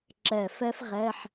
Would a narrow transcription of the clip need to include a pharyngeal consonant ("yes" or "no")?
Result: yes